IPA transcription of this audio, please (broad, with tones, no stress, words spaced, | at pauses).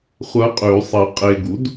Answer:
χʷɐ˧˥qʼʉ˨˩˦sˤɐ˨ qʼe˨ɡu˩˥d